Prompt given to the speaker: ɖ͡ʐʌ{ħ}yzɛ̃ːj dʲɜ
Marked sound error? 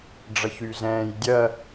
yes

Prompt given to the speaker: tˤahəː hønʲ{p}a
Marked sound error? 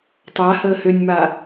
yes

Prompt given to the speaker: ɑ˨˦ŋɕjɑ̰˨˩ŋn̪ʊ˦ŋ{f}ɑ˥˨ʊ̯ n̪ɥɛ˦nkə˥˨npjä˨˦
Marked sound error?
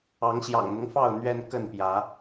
no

